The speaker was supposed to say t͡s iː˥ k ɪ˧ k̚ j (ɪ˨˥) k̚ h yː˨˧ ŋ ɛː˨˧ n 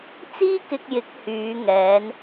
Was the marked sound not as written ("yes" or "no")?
no